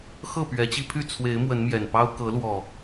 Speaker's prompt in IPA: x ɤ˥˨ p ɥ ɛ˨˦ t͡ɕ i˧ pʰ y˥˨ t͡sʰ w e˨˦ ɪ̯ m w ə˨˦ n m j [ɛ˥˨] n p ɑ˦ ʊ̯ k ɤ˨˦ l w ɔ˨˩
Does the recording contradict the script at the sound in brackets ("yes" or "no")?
yes